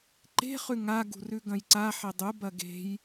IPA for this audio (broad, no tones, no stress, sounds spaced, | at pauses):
ǃ e̤ χ ʉ ŋ a ɡ ṳ r ʉ ɡ ɐ̃ j ǀ a ħ e dˤ u b ɐ ɡ e̤ j